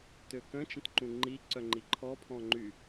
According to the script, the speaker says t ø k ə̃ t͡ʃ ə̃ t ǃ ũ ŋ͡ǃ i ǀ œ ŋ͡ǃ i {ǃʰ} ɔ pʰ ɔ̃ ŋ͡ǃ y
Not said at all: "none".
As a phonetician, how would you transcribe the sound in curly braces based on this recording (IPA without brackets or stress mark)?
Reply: ǃʰ